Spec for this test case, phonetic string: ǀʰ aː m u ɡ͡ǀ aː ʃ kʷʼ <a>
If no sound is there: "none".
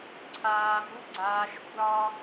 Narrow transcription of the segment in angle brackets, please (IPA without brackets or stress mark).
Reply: ɑ